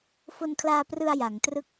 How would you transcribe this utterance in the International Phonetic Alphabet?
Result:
f o˧ n kʰ l aː˧ p r ɯ˧ a̯ j a˩˦ ŋ t r ɯ˥˩ k̚

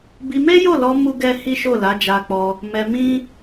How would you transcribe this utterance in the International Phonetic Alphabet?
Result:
b i˧ m e˦ j o˦˨ l ɔ˧ m u˦ ɡ ɛ˦ h i˦ ʃ o˦˨ l a˨˦ d͡ʒ a˧ k͡p ɔ˧ | m ɛ˧ m ĩ˦

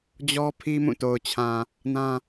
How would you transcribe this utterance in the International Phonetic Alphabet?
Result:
d͡ʑ ɔ˦ pʰ i˦ m ũ˦˨ t o˨ ʊ̯ t͡ɕʰ ã˨ | n ã˦

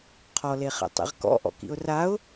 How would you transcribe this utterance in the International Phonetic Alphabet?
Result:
qʰ ɔ l e χ ɛ̰ tˤ ḛ ʁ k ɔ̰ ʔ ɔ̰ k ḭ ʊ̯ r a ʊ̯

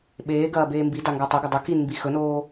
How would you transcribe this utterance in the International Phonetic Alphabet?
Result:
ɓ eː ɡ ɐː b eː m b i d a ŋ ɡ a tˤ ɵ ɡ ɐ dˤ ɵ k i n m b i x ɵ n oː

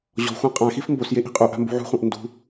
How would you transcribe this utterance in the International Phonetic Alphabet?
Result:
ʑ ɔ̤ xʷ ã qʼ ã x i f m b o s j e ʔ i̤ qʼ u ʔ a̤ m b ṳ ʕ ṳ χʷ ã ʔ n d ṳ

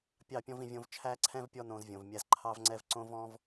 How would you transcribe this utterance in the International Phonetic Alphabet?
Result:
pʲ ɑ˦˨ pʲ ɔ̃˦ v ĩ˧ vʲ õ˧ v t͡ʃʰ æ˦ ǀʰ ɛ̃˦ v pʲ ɔ˦ n õ˧ z vʲ õ˨ v mʲ æ˧ z ǃʰ ɑ˦ v ŋ͡ǀ ɛ˦ v ǀ õ˦ v ɔ̃˦ v

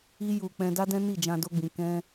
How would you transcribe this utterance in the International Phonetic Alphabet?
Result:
i˦ j u˧ k͡p ɛ̃˧ d a˦ d ɛ̃˦ n i˦˨ d͡ʒ ã˧ d o˧ ɡ͡b ĩ˨ k ɛ̃˧

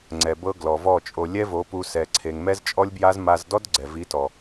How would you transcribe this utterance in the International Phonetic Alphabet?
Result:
ŋ͡ǀ ɛ˨ b ɤ˧ ɡ l ɔ˨ v ɔ˦˨ t͡ʃʼ o˧ lʲ ɛ˦ v o˨˦ p u˧ s ɛ˧ ǀʰ e˧ ŋ m ɛ˦ z t͡ʃʼ ɔ˦ lʲ b j a˦ z m a˧ z d ɔ˦ d ɡ͡ǀ ɛ˨ v i˨˦ t ɔ˨

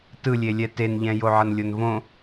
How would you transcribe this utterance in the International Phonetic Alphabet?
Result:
t ɯ lʲ e lʲ ɛ t e n ʎ ɛ̃ j o ʕ ʌ n lʲ o n v õ

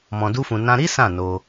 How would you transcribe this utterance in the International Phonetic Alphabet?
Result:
m ɔ̃˧ d u˦ f ũ˧ n ã˧ ɾ i˦ s ã˦˨ n o˧

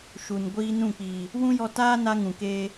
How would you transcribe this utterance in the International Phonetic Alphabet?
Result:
ʃ u˨ n ɡʷ iː˧ n ũ˦˨ k͡p iː˨ | w ũ˦ j ɔ˧ t aː˦ n a˧ ŋ ũ˨ k eː˧

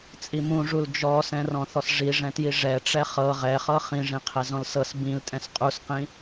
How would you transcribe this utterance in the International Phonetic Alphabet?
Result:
t͡sʼ i m ũ ʐ u l d͡ʒ ɔ s ɛ̃ r ɔ̃ θ ɔ s ʐ i ʐ ɛ̃ t j i ʐ ɛ ʈ͡ʂ ɛ χ ɤ ʁ ɛ χ ɤ χ ĩ ʐ ĩ qʰ ɛ z ɔ̃ l s ɤ s b ĩ l tʼ ɛ̃ s qʼ u s q ĩ

